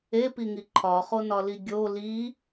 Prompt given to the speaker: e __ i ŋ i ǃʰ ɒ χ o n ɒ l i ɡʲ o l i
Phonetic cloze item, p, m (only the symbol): p